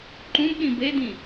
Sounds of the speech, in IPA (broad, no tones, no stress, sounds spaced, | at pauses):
ǃ ũ b ɗ ĩ b e d̪ ĩ